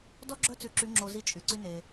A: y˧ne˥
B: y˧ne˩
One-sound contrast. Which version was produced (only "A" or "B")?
B